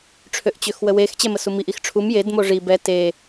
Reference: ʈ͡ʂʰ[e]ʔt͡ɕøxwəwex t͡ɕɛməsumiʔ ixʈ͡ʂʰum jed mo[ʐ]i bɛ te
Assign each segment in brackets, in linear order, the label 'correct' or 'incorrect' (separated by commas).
incorrect, correct